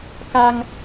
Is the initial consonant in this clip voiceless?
yes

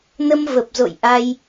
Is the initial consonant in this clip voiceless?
no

